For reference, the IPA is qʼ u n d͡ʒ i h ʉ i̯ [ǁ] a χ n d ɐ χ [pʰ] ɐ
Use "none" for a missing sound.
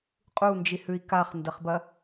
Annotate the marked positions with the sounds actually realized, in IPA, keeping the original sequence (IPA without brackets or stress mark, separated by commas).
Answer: k, b